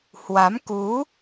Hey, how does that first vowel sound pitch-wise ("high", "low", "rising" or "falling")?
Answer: rising